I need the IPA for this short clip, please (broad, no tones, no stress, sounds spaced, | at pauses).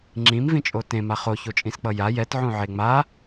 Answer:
ŋ͡ǁ ĩ m v ĩ t͡ʃʼ o t ẽ m a χ o ç o t͡ʃʼ ĩ s k͡p ʌ j a j ɛ t ʕ ũ ʕ e ŋ͡m a